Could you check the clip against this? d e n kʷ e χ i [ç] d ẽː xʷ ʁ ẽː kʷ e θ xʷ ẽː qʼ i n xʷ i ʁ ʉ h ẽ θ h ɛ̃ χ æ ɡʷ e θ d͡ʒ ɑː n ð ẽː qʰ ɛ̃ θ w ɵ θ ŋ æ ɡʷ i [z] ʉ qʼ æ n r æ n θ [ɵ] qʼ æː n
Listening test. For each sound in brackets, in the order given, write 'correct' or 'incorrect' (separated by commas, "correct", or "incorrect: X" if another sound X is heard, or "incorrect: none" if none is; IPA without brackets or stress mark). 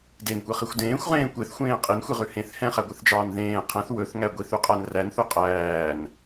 incorrect: xʷ, incorrect: θ, correct